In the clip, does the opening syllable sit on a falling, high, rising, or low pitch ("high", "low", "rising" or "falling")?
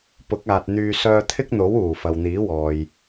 rising